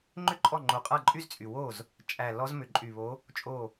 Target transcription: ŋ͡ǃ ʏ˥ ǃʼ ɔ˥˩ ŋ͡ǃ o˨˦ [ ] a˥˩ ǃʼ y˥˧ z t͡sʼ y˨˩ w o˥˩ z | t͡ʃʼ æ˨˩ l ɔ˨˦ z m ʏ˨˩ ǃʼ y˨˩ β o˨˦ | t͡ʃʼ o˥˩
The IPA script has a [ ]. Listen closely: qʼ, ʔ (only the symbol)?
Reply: qʼ